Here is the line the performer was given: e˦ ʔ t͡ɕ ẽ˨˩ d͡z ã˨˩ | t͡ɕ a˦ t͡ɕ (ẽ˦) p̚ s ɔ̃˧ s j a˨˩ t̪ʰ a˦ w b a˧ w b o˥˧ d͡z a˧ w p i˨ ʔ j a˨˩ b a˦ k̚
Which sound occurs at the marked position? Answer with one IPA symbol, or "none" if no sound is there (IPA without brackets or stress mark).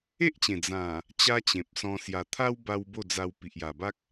ẽ˨